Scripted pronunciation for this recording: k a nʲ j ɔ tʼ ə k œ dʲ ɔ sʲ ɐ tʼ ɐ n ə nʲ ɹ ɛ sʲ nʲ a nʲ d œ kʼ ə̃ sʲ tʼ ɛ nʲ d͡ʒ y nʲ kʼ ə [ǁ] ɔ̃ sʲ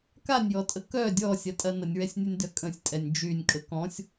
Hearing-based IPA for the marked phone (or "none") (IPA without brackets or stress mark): k